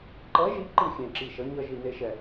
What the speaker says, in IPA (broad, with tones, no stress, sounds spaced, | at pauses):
ǃ ʌ˨˥ ʒ i˨˥ ǃ ɨ˧˩ xʲ ẽ˧˩ ǁ i˧˩ ʃ ʌ˨˥ ɲ ʌ˧˩ ʒ i˧˩ n e˧˩ ʃ ɛ˧˩